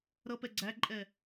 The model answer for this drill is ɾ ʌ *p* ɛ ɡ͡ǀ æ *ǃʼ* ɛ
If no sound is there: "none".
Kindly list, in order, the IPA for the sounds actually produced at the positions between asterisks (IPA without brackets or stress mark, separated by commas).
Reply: p, ǃʼ